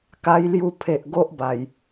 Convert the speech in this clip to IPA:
k a˧ j l j u˧ pʰ e˨ ʔ ɡ o˦ ʔ b a˨˩ j

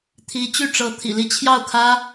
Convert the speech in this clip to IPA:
t̪ʰ i˧˥ t͡ɕ y˥˩ ʈ͡ʂ ɤ˧˥ t̪ʰ ḭ˨˩ l i˥˧ t͡ɕʰ j ɑ˥˩ ʊ̯ kʰ ä˥

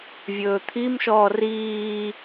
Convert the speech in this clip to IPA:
vʲ ɵː t̪ʰ i m ʃ ɔː r iː

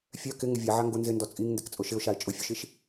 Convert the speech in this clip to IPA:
fʲ œ k ɪ ŋ ɪ vʲ a ʕ a ŋ ɡ ʊ n z ɪ n d ɔ t͡sʼ i ŋ n d ɪ k t͡sʼ ʊ ʃ ɪ ʊ̯ ʃ a ɪ̯ t͡ʃʼ ʊ fʲ ʊ ʃ i ʃ

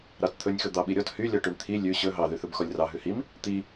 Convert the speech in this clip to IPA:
ɾ ɑ t t̪ʰ ɵ nʲ x ɵ d̪ ɑ ɓ i ɾʲ ɔ t h y lʲ ɔ ʈ ʉ ɳ t̪ʰ i lʲ ʉ ɕ ɵ ɦ ɑ ð y θ ɵ b x ɔ lʲ r ɑ ɦ ʉ h i m | t̪ i

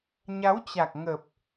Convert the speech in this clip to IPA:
ɲ a˨˦ w t͡ɕ a˨˩ k̚ ŋ ə˨˩ p̚

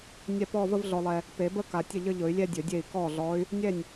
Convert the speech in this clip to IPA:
nʲ ɛ˥˧ p ɔ˥˧ v ə˥˧ v ɮ ɔ˨ lˠ ɛ˨ | p e˨˩˦ b ə˥˧ k a˨ tʲ ə˥˩ ʎ ə˥˧ ʎ ɵ˨˩˦ y̯ lʲ ɛ˥˧ dʲ ɵ˨˩˦ dʲ e˥˩ i̯ k ɔ˥˩ ɮ ɔ˧˥ y̯ | nʲ ɛ˥˩ nʲ

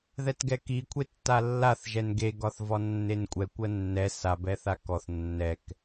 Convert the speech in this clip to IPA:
ð ɛ t ɡ ɛ k i kʷʰ e tː a lː a θ ʒ ɛ n ɡ e ɡ ɒ θ v ɒ nː e n kʷʼ ɛ kʷ ɜ nː ɛ s a b ɛ θ a k ɔ θ nː ɛ k

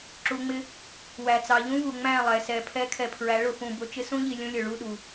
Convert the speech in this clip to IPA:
ǁ u˨ ŋ͡m ɪ˦ | w æ˨ t͡s ɑ˨ ʎ ũ˦ v u˨ ŋ͡m æ̃˦˨ lˠ ɛ˨ s ɛ˨ pʰ ɛ˦ kʰ ɛ˨ pʰ ɹ æ˨˦ ɭ ʊ˨ f ũ˨ b ʊ˨ t͡ʃ ɪ˦ s ũ˦ ʎ i˨ lʲ ũ˦ lʲ ʊ˨ ɭ u˦˨ ɗ u˨

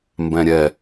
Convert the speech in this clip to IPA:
m b ɛ̃ ɾʲ ɛ

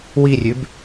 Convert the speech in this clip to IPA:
w i rʲ ʉ b

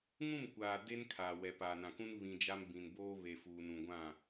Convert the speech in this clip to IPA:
ŋ ũ˦˨ m kʷ aː˨ d e˦ n kʰ aː˨ w ɛ˨ p a˨ n ã˨ k ũ˦ n β ĩ˨ d͡ʒ a˦ m b ĩ˨ n b oː˦ β e˨ f uː˨ n ũ˨ ɡʷ ã˦˨

